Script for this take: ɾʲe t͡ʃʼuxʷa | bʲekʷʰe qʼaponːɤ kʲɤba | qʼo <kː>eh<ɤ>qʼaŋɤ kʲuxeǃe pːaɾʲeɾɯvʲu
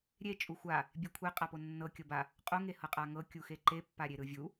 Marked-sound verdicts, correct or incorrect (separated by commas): incorrect, correct